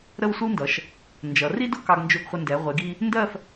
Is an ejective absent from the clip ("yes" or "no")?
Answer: yes